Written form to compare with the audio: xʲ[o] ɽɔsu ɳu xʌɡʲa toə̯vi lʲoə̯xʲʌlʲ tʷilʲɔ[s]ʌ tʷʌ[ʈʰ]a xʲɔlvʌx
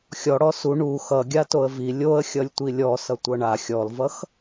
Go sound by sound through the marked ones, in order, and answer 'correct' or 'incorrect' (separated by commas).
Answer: incorrect, correct, incorrect